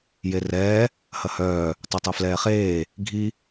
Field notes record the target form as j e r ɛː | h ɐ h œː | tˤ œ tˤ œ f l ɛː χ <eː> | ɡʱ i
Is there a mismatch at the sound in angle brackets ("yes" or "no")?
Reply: no